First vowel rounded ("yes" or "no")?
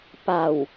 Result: no